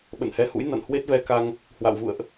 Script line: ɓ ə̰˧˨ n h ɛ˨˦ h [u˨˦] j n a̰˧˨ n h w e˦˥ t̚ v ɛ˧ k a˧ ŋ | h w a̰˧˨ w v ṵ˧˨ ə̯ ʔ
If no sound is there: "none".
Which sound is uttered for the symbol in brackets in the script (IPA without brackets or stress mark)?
ṵ˧˥